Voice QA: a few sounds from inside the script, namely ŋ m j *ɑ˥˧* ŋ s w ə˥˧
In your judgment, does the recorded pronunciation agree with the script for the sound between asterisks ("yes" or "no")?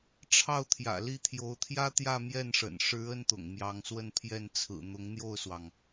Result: no